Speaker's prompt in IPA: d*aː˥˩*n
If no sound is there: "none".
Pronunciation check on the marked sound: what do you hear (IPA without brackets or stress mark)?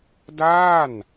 aː˥˩